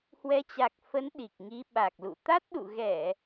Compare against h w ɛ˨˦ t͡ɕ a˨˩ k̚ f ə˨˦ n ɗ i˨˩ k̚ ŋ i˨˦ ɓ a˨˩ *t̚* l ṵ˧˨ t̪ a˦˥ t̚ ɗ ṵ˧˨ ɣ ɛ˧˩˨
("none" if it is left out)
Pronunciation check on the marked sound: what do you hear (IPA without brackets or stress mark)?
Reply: k̚